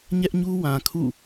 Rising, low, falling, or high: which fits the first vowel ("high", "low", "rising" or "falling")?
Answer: high